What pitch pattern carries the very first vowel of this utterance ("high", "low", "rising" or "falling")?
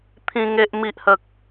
high